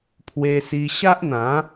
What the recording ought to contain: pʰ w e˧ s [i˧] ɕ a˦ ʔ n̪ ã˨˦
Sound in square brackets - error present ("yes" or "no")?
no